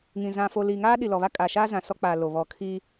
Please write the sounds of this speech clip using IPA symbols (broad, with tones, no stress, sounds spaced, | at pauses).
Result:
ŋ ĩ˨ z ã˨ f o˨ l iː˨ ŋ aː˦ ɗ i˨ l ɔ˨ β a˦ kʼ a˨ ʃ aː˦ z ã˨ s ɔ˦ k͡p aː˨ l o˨ β ɔ˨ kʰ iː˦